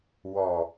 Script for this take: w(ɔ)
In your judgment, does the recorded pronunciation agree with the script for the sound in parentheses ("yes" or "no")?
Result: yes